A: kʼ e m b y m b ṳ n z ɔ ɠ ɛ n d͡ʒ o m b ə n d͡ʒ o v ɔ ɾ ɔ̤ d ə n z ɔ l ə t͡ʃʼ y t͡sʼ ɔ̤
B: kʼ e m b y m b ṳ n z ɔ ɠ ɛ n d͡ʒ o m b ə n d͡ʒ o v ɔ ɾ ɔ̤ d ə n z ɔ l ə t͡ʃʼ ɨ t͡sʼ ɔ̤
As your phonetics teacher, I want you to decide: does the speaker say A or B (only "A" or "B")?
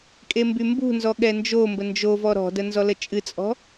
B